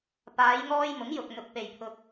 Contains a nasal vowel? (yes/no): no